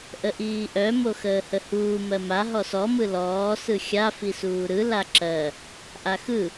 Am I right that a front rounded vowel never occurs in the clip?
no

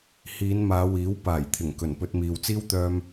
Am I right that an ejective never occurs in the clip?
yes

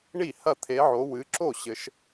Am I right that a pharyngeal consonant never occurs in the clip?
no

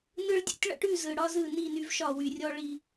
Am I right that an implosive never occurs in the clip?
yes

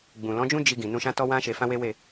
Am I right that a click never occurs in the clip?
yes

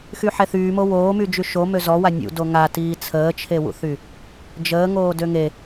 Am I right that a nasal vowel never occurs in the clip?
yes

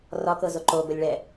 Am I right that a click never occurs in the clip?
no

